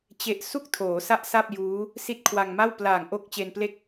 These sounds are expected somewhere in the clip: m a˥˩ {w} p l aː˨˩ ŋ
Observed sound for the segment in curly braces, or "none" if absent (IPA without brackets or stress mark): w